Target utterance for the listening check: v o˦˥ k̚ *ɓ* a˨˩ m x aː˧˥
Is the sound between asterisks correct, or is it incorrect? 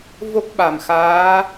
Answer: correct